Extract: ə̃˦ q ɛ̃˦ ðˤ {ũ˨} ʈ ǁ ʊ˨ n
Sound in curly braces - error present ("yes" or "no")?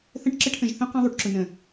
yes